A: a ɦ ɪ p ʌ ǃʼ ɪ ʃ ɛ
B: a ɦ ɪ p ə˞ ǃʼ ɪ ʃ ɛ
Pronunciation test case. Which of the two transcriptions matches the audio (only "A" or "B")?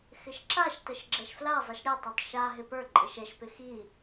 B